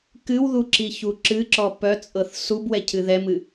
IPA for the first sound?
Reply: k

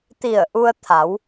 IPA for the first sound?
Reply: t̪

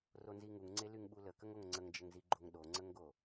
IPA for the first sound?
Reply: r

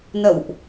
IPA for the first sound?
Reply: n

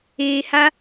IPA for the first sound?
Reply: eː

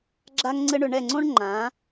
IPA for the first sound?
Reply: ɡ͡ǁ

